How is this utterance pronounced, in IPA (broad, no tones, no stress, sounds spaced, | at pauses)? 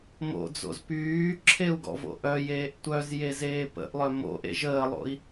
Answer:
m o̰ d͡z o̰ z p yː ǁʰ e u̯ ɡ ɔ̰ v o̰ ʔ œ j eː ʔ tʷ œ z j e z eː p ə̰ ʔ lˠ œ m o̰ ʔ ḛ ʒ əː lˠ o̰ i̯